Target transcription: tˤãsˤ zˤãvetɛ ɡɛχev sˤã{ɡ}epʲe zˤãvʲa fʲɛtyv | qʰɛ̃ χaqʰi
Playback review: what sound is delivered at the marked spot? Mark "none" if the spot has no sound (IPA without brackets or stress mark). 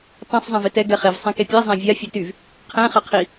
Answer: k